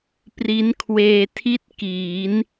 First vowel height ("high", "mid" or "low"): high